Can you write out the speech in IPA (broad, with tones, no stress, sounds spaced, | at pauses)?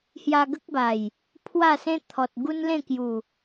h j a˧ ɡ ə˦ k̚ b a˨˩ j | pʰ w a˥˧ s ẽ˦ t̪ʰ ɔ˨ t̚ ɡ u˦ n l ẽ˥˧ k j u˨˩